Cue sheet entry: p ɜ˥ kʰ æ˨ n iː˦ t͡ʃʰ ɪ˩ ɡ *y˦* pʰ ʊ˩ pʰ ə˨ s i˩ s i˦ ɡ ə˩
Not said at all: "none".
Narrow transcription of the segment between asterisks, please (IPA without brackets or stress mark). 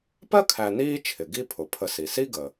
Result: i˦